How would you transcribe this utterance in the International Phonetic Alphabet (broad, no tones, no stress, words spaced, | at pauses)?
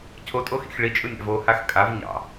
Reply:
cʰotʼoxḭx ɭit͡ʃʼɯ nʲɑ̰vo haxkʼav ɲɑ̰